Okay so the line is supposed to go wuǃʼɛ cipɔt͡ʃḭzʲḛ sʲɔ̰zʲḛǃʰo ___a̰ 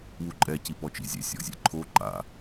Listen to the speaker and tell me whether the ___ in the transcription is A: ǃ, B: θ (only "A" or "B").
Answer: A